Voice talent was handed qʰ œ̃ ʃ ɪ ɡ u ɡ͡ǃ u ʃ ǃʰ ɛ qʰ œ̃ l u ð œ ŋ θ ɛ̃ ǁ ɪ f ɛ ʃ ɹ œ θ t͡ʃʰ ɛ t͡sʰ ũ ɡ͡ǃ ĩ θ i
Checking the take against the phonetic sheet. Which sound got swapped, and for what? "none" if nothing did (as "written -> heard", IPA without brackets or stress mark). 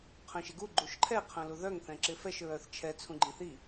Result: none